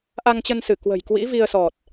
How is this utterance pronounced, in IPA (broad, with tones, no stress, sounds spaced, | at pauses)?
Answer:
ʔ a˧ ŋ t͡ɕ ə˧ n s ɨ˧˩ k w ə̤˨˩ j k w ḭ˧˥ v i˧ ə̯ s ɔ˨˩ t̚